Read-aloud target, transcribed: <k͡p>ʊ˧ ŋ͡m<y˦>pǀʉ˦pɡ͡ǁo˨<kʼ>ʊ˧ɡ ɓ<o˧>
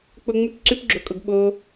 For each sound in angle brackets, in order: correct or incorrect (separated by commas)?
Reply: correct, correct, correct, correct